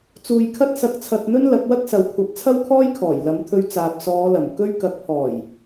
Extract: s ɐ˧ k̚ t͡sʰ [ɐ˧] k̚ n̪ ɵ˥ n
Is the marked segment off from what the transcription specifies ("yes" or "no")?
no